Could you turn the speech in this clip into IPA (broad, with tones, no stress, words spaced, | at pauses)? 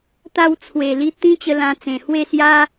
t̪a˧w t͡sʰwe˨˩ li˦ t̪ĩ˦t͡ɕə˧ lã˧t͡sẽ˨˩ hwe˥˧sja˦